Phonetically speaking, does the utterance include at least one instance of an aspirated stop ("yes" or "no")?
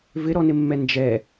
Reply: no